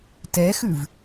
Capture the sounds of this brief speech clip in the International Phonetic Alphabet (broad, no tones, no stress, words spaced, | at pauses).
tɛxʉv